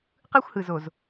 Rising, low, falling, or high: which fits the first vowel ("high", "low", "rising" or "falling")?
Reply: high